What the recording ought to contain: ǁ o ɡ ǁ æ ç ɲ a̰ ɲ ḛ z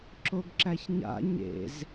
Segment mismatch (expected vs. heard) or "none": none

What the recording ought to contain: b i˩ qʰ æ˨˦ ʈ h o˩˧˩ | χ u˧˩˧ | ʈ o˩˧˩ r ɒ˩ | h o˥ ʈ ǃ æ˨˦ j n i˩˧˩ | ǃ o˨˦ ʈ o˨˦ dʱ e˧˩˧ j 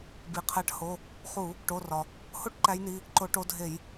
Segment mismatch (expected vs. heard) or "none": none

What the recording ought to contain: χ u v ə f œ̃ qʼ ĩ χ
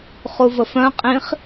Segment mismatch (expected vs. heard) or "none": none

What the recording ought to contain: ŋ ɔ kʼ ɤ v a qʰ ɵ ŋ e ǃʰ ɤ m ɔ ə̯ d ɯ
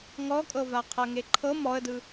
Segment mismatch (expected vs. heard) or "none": ɵ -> ɤ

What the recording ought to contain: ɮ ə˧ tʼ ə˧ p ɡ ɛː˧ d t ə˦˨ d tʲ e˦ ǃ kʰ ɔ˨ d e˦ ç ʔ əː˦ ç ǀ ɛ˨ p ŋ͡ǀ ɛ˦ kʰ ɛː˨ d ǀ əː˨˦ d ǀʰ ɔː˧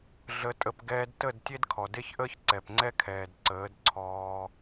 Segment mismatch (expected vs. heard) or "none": ǃ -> d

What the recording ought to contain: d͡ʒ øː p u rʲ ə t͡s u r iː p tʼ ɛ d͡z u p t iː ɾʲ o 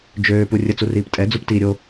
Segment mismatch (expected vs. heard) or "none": none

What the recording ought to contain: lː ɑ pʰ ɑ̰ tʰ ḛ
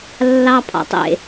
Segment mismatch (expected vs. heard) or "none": tʰ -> tˤ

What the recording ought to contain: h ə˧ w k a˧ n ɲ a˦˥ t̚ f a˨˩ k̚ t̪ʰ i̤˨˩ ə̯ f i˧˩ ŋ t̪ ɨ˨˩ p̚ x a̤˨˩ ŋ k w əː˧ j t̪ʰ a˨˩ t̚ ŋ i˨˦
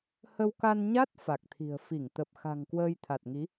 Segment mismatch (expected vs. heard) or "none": ɨ˨˩ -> ə˨˩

